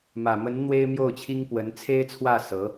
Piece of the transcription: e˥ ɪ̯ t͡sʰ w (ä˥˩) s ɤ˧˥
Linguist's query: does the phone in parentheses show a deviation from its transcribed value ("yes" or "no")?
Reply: no